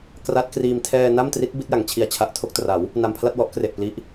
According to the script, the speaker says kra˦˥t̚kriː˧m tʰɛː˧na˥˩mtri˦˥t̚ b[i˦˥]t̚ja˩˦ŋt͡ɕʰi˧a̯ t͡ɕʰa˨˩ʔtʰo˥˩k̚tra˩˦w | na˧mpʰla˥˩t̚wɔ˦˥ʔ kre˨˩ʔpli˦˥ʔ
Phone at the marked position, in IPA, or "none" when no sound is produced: i˦˥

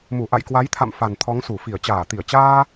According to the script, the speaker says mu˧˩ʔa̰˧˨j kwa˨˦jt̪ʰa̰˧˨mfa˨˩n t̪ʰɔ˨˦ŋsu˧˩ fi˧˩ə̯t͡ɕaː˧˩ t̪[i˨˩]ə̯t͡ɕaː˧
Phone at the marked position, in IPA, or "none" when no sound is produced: i˧˩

